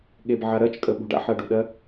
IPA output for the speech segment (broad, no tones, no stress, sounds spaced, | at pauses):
ɠ e b ʕ a ɾ ɜ t͡ʃ kʼ ə ɓ ṳ ɖ a̰ ħ ɜ ɖ u ɗ ɜ